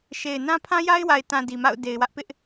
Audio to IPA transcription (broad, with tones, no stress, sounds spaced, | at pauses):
ʃ e˨ ɪ̯ n ã˦ pʰ ã˦ j a˦ ɪ̯ w a˨ ɪ̯ t ã˨ d i˨ m a̰˦˨ ʊ̯ d e˨ ɪ̯ w ä˦ ʔ p ɪ˦ ʔ